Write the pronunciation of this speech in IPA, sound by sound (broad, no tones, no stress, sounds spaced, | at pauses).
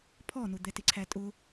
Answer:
pʰ ɔ n ʊ d̪ ɛ t ɪ ǀʰ æ tʼ ʊ